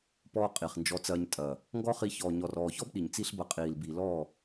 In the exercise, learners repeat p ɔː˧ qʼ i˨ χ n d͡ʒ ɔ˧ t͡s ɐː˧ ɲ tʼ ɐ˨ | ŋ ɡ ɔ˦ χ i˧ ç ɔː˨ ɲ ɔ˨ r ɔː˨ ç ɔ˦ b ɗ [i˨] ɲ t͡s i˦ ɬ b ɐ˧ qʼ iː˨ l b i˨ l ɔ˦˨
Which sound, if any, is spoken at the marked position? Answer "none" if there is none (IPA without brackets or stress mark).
i˨